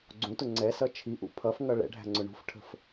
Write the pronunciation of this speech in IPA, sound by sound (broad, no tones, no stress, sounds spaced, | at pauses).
ɡ͡ǀ ũ t ʊ ŋ͡ǀ ɛ s ʌ t͡ʃʰ i ʔ ṵ pʰ ʌ f ŋ ʌ ɭ ɛ̰ ɖʱ æ̤ ŋ͡ǀ ʊ ɳ ṳ f ʈʰ ə̤ f